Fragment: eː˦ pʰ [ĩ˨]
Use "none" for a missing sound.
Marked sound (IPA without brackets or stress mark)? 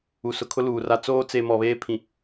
ĩ˨